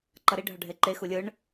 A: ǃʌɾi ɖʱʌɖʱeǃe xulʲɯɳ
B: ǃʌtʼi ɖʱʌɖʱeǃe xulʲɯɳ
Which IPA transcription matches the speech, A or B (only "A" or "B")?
A